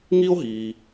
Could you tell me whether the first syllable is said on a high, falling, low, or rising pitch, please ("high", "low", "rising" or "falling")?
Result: high